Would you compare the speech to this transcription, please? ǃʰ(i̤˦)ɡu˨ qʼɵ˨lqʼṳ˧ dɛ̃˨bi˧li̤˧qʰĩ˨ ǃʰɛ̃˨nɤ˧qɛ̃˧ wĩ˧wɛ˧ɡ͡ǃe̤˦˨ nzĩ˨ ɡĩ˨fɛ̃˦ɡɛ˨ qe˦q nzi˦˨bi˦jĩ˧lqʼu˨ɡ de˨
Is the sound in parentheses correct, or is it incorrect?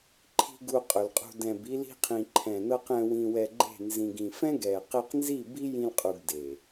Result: incorrect